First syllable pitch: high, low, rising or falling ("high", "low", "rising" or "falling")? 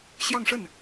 falling